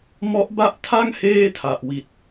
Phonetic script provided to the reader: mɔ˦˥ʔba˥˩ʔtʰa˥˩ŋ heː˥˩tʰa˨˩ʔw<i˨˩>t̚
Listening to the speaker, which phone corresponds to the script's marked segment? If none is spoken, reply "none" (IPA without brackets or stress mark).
i˨˩